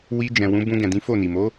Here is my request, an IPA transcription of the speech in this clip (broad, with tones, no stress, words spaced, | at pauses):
wi˧ d͡ʒɛ̃˨wũ˨˦bũ˧ ɡɛ̃˨dĩ˨˦fo˦˨ni˨ mo˨˦